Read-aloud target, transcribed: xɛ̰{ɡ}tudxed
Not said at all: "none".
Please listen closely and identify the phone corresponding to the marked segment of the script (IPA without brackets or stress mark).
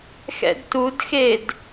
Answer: d